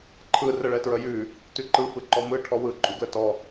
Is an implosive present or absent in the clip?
absent